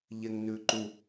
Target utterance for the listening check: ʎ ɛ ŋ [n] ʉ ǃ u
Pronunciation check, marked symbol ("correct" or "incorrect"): correct